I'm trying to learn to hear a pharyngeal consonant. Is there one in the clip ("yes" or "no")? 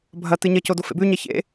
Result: no